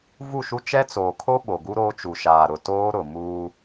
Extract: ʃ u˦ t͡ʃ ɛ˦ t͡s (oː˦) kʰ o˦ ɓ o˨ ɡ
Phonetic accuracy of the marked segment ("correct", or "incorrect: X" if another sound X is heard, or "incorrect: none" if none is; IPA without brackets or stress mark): incorrect: oː˨